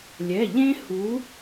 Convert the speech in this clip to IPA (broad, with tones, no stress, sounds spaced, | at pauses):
lʲ ɛ˩˧˩ ʎ ẽ˦ h u˨˥